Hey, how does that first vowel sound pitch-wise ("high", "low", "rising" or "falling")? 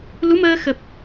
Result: rising